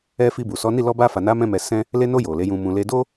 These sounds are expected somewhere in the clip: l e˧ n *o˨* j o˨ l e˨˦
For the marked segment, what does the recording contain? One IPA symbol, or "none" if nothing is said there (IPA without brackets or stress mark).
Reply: o˧